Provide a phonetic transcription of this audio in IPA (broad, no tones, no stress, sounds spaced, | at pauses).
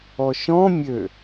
ɔ ʃ ɔ̃ mʲ ø